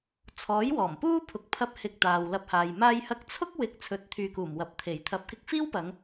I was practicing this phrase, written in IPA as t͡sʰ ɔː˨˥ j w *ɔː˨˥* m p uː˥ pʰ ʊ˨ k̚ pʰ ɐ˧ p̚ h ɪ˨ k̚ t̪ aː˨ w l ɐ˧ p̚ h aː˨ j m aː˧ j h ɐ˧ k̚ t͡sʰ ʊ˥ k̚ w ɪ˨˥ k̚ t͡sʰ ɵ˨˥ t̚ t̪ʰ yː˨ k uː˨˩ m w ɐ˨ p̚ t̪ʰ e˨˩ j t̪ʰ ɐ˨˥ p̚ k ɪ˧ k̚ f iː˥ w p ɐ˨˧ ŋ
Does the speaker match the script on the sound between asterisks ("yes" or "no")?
no